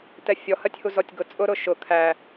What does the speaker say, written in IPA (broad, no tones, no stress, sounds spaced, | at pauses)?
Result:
t ɛ fʲ ɔ h ɜ tʲ h u z ɔ tʲ ɡ ʊ t͡sʼ ʊ ɾ ʊ ʃ ʊ kʰ æ